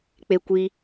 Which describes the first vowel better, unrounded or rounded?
unrounded